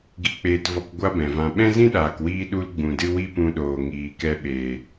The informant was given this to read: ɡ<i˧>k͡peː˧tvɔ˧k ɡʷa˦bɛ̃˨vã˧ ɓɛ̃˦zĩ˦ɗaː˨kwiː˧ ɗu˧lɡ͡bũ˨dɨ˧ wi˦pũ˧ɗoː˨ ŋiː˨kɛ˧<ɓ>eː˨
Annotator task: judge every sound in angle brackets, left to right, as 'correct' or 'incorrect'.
correct, correct

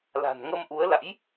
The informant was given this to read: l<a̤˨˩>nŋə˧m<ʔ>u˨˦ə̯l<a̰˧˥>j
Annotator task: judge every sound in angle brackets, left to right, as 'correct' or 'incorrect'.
correct, correct, correct

